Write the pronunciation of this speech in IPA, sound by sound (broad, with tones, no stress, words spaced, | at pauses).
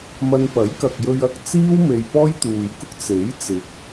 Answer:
mɐ˧n pɐ˨˥jkɐ˨k̚jɵ˧ɥ ɐ˧k̚t͡siː˥w me˧jpɔː˥jt̪uː˨jkʊ˥k̚ t͡se˨˥j t͡sɪ˨˥k̚